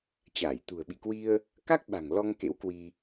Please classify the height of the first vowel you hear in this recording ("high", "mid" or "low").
low